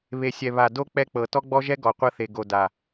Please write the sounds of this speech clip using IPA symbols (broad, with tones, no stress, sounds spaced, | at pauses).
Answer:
β e˨ sʲ ɛ˨ β a˨ d o˦ k͡p ɛ˦ k͡p ɤ˨ t ɔ˦ ɡ͡b ɔ˦ ʒ ɛ˦ ɡ ɔ˨ qʷ ɤ˦ θ e˨ ɡ o˨ d a˨